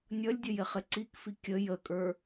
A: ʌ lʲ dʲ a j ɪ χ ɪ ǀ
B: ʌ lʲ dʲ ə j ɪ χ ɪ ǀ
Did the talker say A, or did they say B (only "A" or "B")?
B